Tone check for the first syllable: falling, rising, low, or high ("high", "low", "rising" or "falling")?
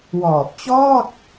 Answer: low